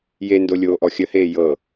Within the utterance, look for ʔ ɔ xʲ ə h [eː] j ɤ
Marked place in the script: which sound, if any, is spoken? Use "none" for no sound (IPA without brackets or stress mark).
eː